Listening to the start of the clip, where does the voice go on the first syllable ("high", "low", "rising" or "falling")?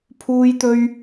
high